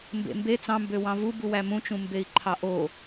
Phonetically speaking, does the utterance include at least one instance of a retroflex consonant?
no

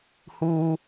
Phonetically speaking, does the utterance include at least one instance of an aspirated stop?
no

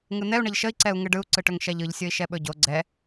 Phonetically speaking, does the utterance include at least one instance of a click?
yes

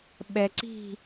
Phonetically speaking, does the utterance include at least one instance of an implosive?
yes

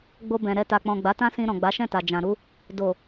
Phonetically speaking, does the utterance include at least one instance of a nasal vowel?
yes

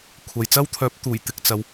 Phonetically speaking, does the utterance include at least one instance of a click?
no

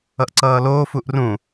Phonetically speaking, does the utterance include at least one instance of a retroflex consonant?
no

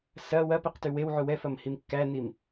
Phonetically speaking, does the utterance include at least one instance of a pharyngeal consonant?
yes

